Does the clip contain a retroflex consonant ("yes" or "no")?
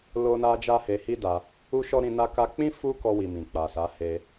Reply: no